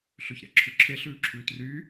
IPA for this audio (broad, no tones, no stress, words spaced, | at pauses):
ɬøçɾæ̰ǁʰʉǁʰe ɬʉːǁʰʉːtryː